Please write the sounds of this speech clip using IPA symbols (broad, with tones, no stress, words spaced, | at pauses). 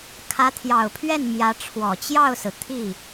kʰä˧˥t̪ʰjɑ˨˩ʊ̯pʰɥɛ˥˩n mjä˧˥ ʈ͡ʂʰwɔ˨˩t͡ɕjɑ˥˩ʊ̯sɹ̩˩ t̪ʰi˥˩